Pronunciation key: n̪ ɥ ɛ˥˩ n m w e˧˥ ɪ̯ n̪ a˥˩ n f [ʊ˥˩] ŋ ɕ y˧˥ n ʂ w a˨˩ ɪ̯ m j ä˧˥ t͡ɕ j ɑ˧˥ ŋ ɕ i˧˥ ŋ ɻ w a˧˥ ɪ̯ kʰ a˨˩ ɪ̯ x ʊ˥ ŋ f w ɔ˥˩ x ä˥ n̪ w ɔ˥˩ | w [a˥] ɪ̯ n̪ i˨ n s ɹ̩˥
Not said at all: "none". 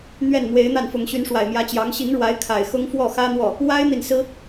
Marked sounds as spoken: ʊ˧˥, a˥

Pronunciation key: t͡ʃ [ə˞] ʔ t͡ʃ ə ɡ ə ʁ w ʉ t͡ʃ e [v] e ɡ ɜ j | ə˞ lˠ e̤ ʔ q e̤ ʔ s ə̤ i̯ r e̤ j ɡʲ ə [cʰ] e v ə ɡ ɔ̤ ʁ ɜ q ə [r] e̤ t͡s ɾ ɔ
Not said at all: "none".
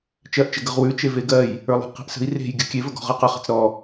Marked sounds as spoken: ɜ, v, kʲ, χ

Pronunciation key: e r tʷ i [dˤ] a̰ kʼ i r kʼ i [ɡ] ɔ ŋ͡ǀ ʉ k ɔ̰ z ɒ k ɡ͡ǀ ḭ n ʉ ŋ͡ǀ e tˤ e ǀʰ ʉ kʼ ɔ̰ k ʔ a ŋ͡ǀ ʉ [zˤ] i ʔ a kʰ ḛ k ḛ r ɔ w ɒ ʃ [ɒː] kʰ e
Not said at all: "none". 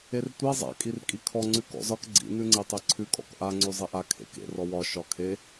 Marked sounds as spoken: zˤ, kʰ, zˤ, ɒ

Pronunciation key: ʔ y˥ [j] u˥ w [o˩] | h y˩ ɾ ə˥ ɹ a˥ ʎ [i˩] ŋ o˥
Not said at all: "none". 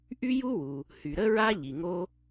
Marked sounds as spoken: j, u˩, i˩

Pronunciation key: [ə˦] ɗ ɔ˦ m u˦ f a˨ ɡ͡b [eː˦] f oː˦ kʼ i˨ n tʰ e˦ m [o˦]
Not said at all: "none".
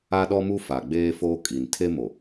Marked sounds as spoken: a˦, eː˦, o˨

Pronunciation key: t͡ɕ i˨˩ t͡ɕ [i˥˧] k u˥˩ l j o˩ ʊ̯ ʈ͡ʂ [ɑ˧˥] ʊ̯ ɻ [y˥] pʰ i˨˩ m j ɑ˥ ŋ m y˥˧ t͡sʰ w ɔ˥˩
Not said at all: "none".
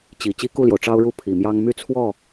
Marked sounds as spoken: i˥, ɑ˥, u˥

